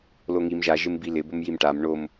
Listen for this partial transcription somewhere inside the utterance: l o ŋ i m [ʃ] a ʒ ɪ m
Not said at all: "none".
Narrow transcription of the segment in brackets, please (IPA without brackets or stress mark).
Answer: ʒ